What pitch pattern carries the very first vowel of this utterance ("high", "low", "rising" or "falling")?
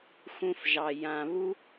high